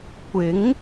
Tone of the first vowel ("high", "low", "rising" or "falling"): rising